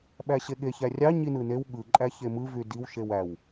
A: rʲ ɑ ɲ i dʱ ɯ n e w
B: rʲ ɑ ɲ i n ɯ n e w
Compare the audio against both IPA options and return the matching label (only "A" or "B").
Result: B